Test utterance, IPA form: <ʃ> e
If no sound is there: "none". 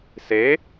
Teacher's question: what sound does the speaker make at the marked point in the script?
s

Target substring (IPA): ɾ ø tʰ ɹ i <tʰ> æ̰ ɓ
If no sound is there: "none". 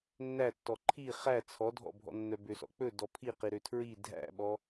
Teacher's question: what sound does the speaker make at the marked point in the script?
dʱ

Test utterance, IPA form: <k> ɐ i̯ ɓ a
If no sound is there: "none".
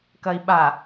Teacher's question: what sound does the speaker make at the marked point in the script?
k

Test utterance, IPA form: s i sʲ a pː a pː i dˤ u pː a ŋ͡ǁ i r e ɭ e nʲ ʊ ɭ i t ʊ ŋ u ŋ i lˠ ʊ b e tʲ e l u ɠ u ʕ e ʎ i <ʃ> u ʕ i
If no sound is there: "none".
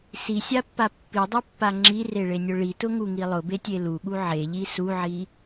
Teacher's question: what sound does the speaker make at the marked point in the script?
s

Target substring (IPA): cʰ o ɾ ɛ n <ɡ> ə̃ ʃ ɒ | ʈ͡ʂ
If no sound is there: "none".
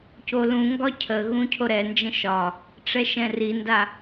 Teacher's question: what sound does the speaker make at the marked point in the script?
d͡ʒ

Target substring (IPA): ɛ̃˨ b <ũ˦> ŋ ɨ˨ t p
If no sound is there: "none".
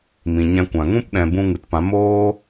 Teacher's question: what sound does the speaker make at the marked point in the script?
ũ˧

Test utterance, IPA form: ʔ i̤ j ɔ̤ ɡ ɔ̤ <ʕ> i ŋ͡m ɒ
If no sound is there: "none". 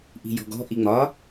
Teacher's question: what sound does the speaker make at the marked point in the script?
ʔ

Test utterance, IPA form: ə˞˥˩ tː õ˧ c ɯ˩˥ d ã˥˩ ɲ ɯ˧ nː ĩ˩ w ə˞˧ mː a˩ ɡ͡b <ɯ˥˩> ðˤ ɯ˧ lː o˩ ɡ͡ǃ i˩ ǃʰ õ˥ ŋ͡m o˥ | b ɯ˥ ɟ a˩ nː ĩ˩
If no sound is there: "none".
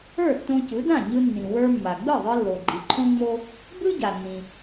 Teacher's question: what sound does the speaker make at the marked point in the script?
ɯ˥˩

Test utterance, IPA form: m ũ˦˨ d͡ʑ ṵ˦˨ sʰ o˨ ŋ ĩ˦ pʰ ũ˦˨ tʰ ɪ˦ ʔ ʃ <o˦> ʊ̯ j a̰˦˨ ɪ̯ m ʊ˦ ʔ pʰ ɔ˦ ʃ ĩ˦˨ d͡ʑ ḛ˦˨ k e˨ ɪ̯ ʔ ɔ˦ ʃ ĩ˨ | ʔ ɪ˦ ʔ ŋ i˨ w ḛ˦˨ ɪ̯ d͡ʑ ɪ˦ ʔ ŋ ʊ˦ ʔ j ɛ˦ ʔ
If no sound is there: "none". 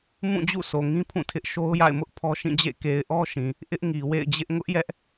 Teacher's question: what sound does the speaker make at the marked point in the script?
o˦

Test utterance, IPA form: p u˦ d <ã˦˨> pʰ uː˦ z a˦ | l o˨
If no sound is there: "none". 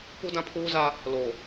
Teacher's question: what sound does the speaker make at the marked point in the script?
ã˦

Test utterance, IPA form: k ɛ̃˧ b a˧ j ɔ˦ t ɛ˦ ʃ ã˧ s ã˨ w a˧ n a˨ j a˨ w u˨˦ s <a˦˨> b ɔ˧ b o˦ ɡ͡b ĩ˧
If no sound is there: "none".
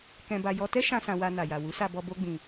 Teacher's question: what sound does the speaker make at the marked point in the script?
a˧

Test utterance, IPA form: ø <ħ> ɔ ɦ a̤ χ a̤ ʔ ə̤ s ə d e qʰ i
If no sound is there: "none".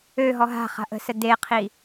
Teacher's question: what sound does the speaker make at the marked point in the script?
ɦ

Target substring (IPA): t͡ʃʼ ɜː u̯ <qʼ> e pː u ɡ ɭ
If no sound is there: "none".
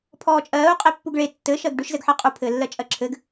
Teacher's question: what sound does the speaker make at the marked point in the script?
qʼ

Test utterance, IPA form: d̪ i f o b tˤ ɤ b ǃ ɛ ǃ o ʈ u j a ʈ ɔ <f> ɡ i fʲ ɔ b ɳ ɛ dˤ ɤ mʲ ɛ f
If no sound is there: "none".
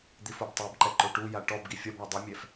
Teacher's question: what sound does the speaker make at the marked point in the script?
b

